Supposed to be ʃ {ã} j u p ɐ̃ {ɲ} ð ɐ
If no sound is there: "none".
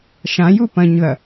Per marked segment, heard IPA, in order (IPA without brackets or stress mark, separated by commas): ã, ɲ